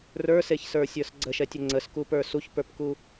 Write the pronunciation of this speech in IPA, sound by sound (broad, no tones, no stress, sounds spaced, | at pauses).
r ə˞ s e ç s ə˞ sʲ ə˞ s ɡ͡ǀ ə ʃ ɛ tʲ ə ŋ͡ǀ ə s k u p ə˞ s u ç p ə˞ p k u